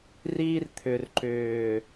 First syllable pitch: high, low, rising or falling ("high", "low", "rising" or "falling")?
high